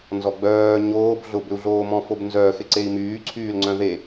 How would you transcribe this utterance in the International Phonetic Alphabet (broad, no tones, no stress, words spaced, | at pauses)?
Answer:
nzɔɡ͡bœː ɲoːb ɮʊbʏu̯ɮoːmɔ̃ fobnzœːx ɪǀei̯myː ǀʰyːlŋ͡ǀœ̃ðe